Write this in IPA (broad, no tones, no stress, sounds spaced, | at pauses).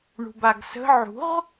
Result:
ɳ ṳ b a ɡ s ə̤ ʕ ṳ ʁ